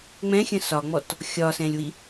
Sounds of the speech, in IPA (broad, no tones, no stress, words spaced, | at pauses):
ŋ͡mɛ̃xʲə̃ sɒŋ͡mɔt | xʲɒsɛ̃lʲwi